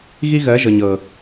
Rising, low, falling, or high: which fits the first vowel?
high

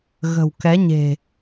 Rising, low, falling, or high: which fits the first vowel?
low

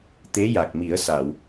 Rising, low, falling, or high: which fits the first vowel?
rising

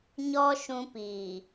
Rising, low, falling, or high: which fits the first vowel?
high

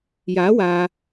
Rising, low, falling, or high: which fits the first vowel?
rising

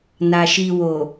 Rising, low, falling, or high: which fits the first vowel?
low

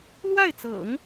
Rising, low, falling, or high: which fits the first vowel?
falling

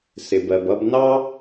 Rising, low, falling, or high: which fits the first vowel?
low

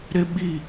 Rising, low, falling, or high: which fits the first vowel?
high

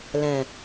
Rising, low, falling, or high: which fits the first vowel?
low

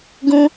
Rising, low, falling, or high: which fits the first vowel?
high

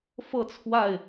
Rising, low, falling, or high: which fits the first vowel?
falling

